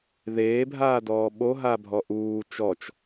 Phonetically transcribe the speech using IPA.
ð eː bʱ aː d ɔː ɓ o ɦ a bʱ ɔ ʔ uː t͡ʃ ɔ t͡ʃ

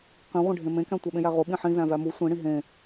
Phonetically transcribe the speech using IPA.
q ĩ ʁʷ ẽ ɖʱ ẽ m ẽ k æ̃ tʷ æ ɓ ẽ j æ ʁ o ɓ ĩ ħ ĩ z æ̃ v æ m u sʷ ĩ ɽ ĩ ɦ ẽ

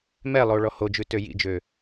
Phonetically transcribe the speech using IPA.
m ɛ lˠ o ɭ ɔ h o d͡ʒ ʉ t ø j ḭ d͡ʒ ø

